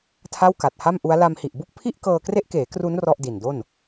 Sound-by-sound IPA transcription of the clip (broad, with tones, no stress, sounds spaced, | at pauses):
tʰ a˥˩ w k a˨˩ t̚ h a˥˩ m ʔ u˦˥ a̯ l a˧ m h i˨˩ ʔ b u˥˩ k̚ pʰ i˥˩ ʔ k ɤː˧ k r e˦˥ ʔ k eː˩˦ k r u˦˥ n r ɔ˥˩ ʔ d i˨˩ n d o˥˩ n